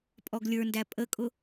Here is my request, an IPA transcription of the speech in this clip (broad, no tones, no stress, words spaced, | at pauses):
pʼɔɡlʲə˞ndæ pʼəkʼʊ